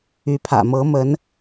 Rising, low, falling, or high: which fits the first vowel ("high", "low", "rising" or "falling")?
rising